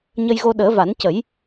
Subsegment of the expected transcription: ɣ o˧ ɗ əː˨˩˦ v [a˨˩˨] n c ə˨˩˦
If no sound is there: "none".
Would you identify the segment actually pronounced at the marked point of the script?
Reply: a˨˩˦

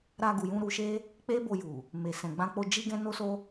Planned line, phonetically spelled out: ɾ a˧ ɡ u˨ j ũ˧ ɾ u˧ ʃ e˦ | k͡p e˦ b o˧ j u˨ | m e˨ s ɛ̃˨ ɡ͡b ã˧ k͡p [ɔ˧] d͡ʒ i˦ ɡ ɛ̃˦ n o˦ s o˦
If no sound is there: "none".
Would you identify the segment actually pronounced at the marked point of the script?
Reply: o˧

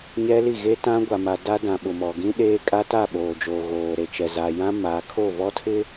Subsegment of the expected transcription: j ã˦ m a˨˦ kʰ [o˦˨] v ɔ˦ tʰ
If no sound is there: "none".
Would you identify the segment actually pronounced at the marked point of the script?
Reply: o˦˨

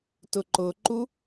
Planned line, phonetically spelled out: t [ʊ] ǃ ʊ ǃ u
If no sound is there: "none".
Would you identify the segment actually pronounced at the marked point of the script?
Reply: ʊ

